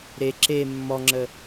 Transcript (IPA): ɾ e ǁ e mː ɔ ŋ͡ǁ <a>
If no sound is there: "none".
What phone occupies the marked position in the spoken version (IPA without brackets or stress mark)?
ə